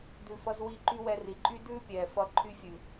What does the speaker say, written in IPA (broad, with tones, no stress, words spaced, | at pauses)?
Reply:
dʉ˨fʌ˧zwi˧ ǃy˧ wɛ˧ri˨ǃʼy˦ dʉː˦pʲɛː˨fʌ˧ ǃʰy˧fʲʉ˨